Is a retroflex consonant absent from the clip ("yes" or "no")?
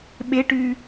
no